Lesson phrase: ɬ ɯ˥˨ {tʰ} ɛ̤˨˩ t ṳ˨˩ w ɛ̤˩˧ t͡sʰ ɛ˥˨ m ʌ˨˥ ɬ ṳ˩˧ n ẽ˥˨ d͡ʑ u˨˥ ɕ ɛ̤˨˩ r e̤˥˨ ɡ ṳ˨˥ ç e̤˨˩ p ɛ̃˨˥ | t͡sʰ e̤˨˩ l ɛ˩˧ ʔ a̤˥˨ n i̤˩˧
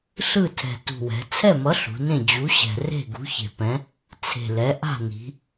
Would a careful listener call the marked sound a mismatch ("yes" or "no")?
no